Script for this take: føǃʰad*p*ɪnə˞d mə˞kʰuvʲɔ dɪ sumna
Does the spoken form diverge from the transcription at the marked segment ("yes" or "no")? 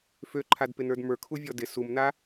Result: no